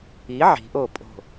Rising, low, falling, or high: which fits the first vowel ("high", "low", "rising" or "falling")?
rising